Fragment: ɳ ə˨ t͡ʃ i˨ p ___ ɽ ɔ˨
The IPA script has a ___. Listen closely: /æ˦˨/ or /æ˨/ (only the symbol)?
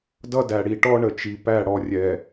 æ˦˨